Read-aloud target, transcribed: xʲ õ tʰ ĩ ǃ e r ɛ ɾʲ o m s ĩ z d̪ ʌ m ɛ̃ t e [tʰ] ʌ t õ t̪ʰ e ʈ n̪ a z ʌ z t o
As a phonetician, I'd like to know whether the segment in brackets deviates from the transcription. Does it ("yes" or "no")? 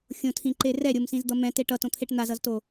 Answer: yes